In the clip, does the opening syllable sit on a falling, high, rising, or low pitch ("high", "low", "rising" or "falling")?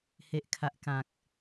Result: low